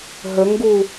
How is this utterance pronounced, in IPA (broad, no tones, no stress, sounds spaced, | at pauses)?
ɦ ə ŋ ɡ u